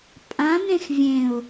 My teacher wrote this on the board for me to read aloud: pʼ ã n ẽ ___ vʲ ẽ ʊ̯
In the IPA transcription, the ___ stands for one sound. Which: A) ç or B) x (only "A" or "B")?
B